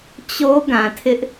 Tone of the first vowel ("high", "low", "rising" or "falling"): high